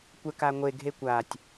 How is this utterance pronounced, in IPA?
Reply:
kʷ ɛ k a ŋʷ e ɡʱ e kʷ a tʲ

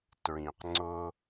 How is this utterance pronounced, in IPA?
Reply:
t ɹ ĩ˨ q ŋ͡ǀ ʊ˦

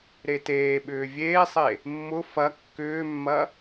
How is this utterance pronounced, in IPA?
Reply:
ɾ e t eː ɓ ʏː vʲ eː sˤ e | mː ʊ f ɐ kː ʏː mː ɐ

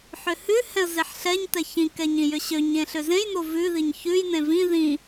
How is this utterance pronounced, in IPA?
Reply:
ħ ʏ h ʉ h ɛ̃ ə̯ z e ħ ɬ ɛ ɲ t ɛ ç ĩ k ɛ ɲ ĩ j ʏ ɕ ø ɲ ẽ ɬ ʏ z ẽ j n̪ o v ʉ ð i ɲ ç ʉ j n̪ ẽ v ĩ ð ĩ

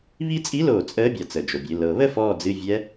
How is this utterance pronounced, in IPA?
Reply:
β i˦˥ t͡sʼ i˧˥˧ l oː˨˩˦ t͡sʼ əː˧˥˧ bʲ a˩ t͡s əː˩ d͡ʒ o˩ bʲ ɨ˩˧˩ l ɤ˨˩˦ β ə˦˨ f ɔː˦˨ d͡z ɨ˦˨ vʲ ɛ˦˥

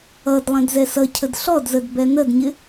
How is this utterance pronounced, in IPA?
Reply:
ʌ d lˠ ɛ̃ d z ɛ s ʌ cʰ ə d ɬ ɔ d z ə d b ɛ n ə d ɲ ɪ

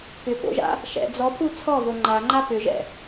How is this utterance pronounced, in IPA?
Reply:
k ʏ k o̰ ʒ a̰ | ʃ ɛ̰ d͡z ɔ pʰ u t͡sʰ ɔ v o ŋ͡ǃ a ŋ͡ǃ a p ʏ ʒ ɛ̰

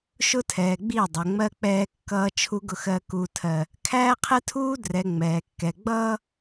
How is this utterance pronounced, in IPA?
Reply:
ʃ ʊ˦ tʰ ɛː˨ ɡ͡b i˦˨ dˤ ɛ˨ ŋ͡m ɜ˦ k͡p ɛː˦ kː ʌː˦ t͡ʃʰ u˦ ɡ ʊ˦ x ɜ˦ k u˦ tʰ ɜ˦ | kʰ æː˦ qʰ ɛ˦ tʰ uː˦ d r ɛ˨ ŋ͡m ɛː˨ kː ɛ˨ ɡ͡b ʌː˦

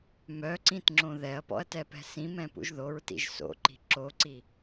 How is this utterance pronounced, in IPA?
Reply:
m œ ǀ ĩ t ŋ͡ǁ õ ð ɛ ɐ̯ p ɔ̰ ɐ̯ t ɛ p ɛ̤ s ĩ m ɛ̃ p ṵ ʒ ð o ɹ t ḭ ʒ s o̰ ǃ i̤ ǁ o ǀ i

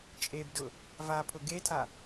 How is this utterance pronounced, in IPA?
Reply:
t͡ʃʼ e b d ʊ | v a pʰ ʊ ɡ e tʰ a

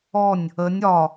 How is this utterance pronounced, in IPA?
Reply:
ɔ nʲ | ə nʲ ɒ

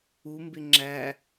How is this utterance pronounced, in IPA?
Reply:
u m b ɪ ŋ͡ǁ æ

